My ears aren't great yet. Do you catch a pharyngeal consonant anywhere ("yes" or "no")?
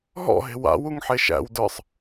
yes